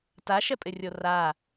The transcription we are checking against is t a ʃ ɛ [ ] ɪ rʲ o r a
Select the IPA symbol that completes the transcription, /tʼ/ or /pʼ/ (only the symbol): pʼ